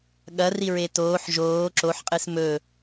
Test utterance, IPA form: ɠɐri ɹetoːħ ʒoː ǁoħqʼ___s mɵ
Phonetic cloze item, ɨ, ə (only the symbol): ɨ